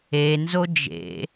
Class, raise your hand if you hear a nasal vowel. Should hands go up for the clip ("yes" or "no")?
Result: no